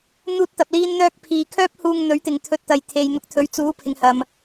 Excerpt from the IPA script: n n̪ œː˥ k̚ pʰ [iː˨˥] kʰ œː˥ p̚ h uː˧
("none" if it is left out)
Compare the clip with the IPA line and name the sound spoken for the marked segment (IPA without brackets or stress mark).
iː˨